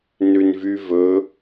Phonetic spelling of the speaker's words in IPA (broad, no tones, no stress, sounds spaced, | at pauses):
n ʉ n v y v ɵ